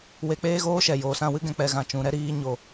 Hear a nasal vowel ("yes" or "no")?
yes